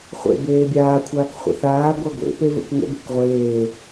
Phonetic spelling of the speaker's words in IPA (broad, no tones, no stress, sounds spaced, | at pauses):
χʷ ḛ b eː bʲ aː kʷʰ aː k χʷ ə̰ θ aː ɡʷ a ɡʷ ḛ p e v ə̰ k ŋ ə̰ b e̤ k ʁʷ eː